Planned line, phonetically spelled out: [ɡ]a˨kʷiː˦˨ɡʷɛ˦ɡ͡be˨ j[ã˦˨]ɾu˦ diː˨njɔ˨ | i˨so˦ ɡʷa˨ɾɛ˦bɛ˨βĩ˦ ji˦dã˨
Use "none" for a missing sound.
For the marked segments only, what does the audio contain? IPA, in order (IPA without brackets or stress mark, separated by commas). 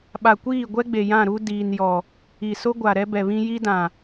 ɓ, ã˦˨